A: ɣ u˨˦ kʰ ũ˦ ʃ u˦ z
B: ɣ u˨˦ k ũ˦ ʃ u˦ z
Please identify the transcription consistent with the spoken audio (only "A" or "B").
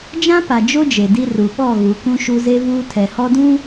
B